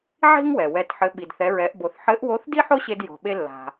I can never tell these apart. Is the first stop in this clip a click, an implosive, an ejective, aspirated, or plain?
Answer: plain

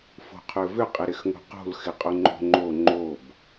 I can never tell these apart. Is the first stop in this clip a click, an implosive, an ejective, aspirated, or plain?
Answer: aspirated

